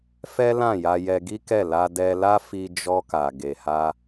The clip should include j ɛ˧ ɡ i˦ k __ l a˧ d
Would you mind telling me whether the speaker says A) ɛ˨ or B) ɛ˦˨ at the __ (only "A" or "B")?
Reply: B